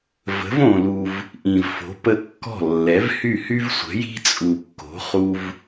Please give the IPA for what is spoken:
və̤˩˥võ˩lu˩v | ʔĩ˩vfo̤˩˥ pə˧ kːɔ̤˥˩ lːɛ˩˥vhy˥˩hy˥v sʷə̤˩˥ji̤˥t͡sʼu˩ kːo̤˩˥χu˧v

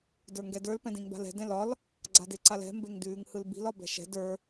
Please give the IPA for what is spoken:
də˞ŋɡɛdə˞l pɛ̃dĩŋba̤lɛ̤ dɛ̃lɒl | ɡ͡ǀadeǀalɛ̤ mbeŋdʉːŋhɯlbi̤l ɒbɛ̤ʃɛ̤ də˞

